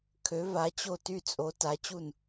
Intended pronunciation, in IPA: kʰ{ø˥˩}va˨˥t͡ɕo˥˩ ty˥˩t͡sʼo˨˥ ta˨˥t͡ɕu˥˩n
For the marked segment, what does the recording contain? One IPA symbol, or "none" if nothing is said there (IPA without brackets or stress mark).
ø˨˥